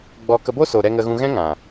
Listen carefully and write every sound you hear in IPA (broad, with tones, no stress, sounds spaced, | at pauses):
ɡ͡b ɔ˧ k ə˧ b o˦ s oː˨ ɾ ɛ˧ ŋ ə˧ ɣ ũ˧ ɣ ɛ̃˦ ŋ ã˨